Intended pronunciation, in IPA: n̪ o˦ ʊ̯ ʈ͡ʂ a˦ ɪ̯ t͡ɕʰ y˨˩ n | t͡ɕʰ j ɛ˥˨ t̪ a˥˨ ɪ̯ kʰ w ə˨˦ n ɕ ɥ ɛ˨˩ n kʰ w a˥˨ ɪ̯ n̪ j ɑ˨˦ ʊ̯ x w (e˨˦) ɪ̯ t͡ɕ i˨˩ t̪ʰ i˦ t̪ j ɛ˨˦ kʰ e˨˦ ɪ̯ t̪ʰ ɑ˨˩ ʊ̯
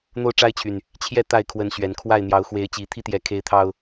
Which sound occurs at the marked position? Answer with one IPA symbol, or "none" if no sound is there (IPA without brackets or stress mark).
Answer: e˨˦